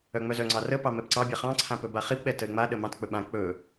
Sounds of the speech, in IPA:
œ ŋ͡m œ z œ ŋ͡ǀ ɑ r ə p ɑ m ɛ p ǀ ɑ bʲ a χ ɑ̃ ǀʰ ã p ɵ b a χ i p ɓ ɛ t ə ɪ̯ ŋ͡m a ɗ ə m ɑ̃ t k͡p ɵ ɓ ã k͡p ɵ

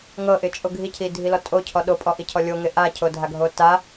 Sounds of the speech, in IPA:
ŋ ɤ ʔ ɪ t͡ʃʼ o ɡʱ i cʰ i dʱ i l ɔ tʼ o cʰ ɔ ɗ o pʼ ɔ ʔ i cʰ ɔ lʲ o ŋ ɪ ʔ a cʰ o dʱ a ɡʱ o t a

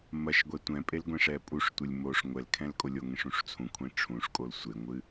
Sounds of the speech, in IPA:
m ɐ ʃ ɡʷ ɛ tʷ ɛ̃ pʼ e l ɡʷ ẽ ʂ ɛ pʼ u ʂ tʷ ɨ lʲ m o ʂ ŋʷ ɛ l kʰ ɛ̃ l kʼ o lʲ o ŋ ẽ ʂ ũ ʂ t͡sʰ ũ kʷʰ ẽ ʈ͡ʂʰ ũ ʂ kʼ o l sʷ e ŋʷ ɨ

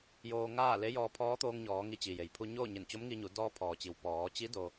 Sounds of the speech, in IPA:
j oː˧ ŋ aː˥˨ l e˧˥ j ɔː˧ pʰ ɔː˧˥ t̪ oː˧ ŋ ɲ ɔː˩˧ ŋ i˧˥ t͡ɕ i˩ j e˩ j pʰ u˧ ɲ oː˥˨ ɲ e˧˩ n t͡ɕ o˧˥ m ŋ i˧ ɲ u˩˧ d ɔː˧ pʰ ɔː˩ t͡ɕ i˩ w p ɔː˩˧ t͡ɕ i˧˥ d o˧

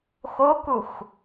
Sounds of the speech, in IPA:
x o k u x

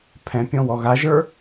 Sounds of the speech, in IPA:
pʰ ɛ̃ pʲ ɔ̃ w ɔ ɣ a ʒ ə˞

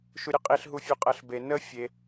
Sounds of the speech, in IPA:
ʃ u ɾʲ ʊ qʼ i ɬ ɦ u fʲ u qʼ ɜ ɬ b e n ə fʲ e

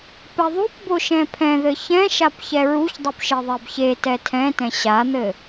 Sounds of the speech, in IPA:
p ɛ ðˤ u p b o ʃ ɛ̃ pʰ ɛ̃ ð ɘ ç ɛ̃ ʃ a p ç ɛ ɹ u ç dˤ u p ʃ e ðˤ ɛ b ç e t ɛ tʰ ɛ̃ t ɛ̃ ɕ a n̪ ɘ

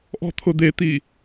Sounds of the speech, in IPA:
ʔ ɔ̤ t̪ʰ ʊ d̪ e t̪ i

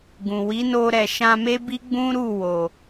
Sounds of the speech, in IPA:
ɡ ũ˨ w i˨˦ n o˧ ɾ ɛ˨ ʃ ã˧ m e˦ b i˦ ɡ͡b ũ˦ ɾ u˦˨ w o˨

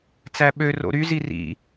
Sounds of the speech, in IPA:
t͡s æ ɓ ø r o̰ ɾ y z i r ḭ

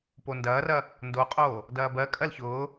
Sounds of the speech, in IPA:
p o n d ɐː r ɐ | n d o qʼ oː | d ɐː b ɜ kʼ ɜ l ç ʊː

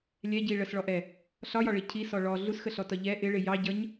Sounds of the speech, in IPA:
lʲ ɛ ɟ i ɭ ə s ɭ ɔ ʔ ɛ | ɬ ɒ j ɒ ɭ i cʰ i s ɔ ɭ ɔ ɮ u s x ə ɬ ɔ t ɒ ʎ ɛ ʔ ɪ ɭ ɪ j ɑ ɟ ʌ ɲ

